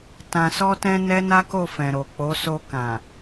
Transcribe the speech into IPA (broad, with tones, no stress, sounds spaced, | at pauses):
t ã˨ s ɔ˧ t ɛ̃˧ n ɛ˦ n a˦ k o˦˨ f ɛ̃˨ ɾ o˨ k͡p o˨˦ s o˧ k ã˨